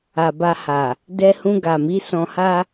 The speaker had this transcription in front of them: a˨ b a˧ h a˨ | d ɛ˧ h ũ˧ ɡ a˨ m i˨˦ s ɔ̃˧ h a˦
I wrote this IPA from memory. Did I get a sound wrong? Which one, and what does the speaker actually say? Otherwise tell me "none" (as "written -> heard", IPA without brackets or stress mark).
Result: none